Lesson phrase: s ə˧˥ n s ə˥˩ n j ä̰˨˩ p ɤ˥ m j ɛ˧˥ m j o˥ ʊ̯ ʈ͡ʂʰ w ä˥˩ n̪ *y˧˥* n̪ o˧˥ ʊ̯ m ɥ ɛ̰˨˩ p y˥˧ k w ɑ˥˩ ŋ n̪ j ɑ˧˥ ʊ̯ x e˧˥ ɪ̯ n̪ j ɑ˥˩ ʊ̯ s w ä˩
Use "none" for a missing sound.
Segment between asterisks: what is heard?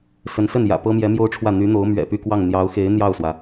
y˧˥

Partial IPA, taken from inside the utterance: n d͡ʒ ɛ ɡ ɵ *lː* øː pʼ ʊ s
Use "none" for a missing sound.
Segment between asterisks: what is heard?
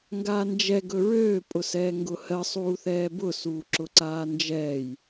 ɹ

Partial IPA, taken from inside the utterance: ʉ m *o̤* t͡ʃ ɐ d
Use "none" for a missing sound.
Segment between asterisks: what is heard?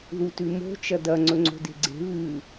o̤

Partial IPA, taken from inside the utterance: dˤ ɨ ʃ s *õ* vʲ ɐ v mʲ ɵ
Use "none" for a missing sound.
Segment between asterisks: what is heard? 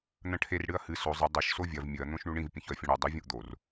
o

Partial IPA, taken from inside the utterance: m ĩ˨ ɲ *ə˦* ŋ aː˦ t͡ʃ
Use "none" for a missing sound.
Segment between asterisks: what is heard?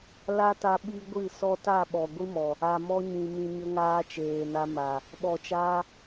ə˦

